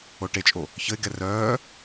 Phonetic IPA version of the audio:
oʈet͡ʃʼo | çəɪ̯ɡɛ rœː

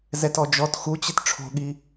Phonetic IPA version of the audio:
zɛtɔd͡ʒɔt xut͡ɕɪt ʈ͡ʂʰo̤ɠi

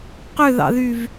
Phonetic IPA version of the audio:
qøðɑ̰ðyv

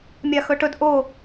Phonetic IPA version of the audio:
mʲaxɵʈɵd ʔo

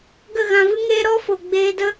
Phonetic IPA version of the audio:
ɡə˦˨ɣã˧vɨ˦ŋeː˦ ɾɔ˦fo˨ ɡ͡beː˧də˦

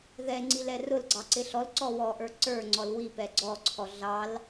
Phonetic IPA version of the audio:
ðɛŋ͡ǀil ɛrʊlɡ͡ǀɑ ǀɪɬɔlǀɔ wɔʔə˞ ǀə˞ŋ͡ǀɔl wipɛ ɡ͡ǀɔǀʰɔ ɮɑl

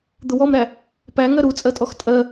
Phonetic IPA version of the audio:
d̪ʊwɔmɾæ | pæŋɜ ɾut͡sʼɜtʼɔx tʼɜ

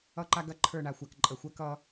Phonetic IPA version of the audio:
ʌ˦ǃa˦ ɡɐ˦ ǃʰə˞˦˨ɳa˨xʷa˨k ǃʼə˨xʷɐ˦ kʌ˦

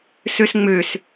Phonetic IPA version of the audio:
søsŋ͡møs

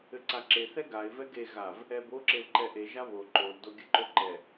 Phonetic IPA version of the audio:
ɘǀaǁe θɛɡaɪ̯ vɛɡe ɣav | ɛbo ǁelǃɛʔe ʒaβo ǃol doɡʲɘǃoǃɛ

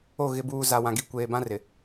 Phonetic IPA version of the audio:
o˦˨ ɣɪ˨buː˨ za˨wã˨ɡi˨ kʷeː˨bã˦ rɪ˨

